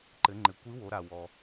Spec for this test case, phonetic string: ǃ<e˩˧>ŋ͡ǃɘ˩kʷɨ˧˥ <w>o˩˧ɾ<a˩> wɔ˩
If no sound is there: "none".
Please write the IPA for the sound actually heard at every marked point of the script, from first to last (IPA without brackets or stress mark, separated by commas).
ɘ˩˧, w, a˩